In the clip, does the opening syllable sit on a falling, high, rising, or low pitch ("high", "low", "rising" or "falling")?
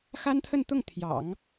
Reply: high